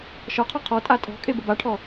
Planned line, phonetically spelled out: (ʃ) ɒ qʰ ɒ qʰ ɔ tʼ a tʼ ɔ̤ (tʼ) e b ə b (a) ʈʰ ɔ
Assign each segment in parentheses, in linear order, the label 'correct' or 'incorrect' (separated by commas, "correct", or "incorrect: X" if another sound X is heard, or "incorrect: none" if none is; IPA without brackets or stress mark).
correct, incorrect: kʼ, correct